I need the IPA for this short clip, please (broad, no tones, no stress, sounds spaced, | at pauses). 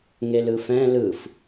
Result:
ŋ e l ɯ f ɛ̃ l ɯ f